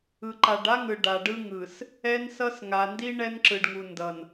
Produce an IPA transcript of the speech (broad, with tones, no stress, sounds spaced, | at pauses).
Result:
ɯ˨ ǃ a˨ ɖ a˦ ŋ ɯ˨ ɖ a˨ ɖ ɯ˦ ŋ ɯ˨ s | ɛ˦ n s ʌ˦ s ŋ a˨ n d i˦ ɳ ɛ˦ n ǁ ɯ˨ ɖ ŋ u˨ n d ʌ˨ n